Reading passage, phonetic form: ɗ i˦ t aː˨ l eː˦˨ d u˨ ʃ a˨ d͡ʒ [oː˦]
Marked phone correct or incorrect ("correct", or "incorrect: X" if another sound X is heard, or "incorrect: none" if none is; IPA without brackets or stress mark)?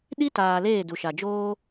correct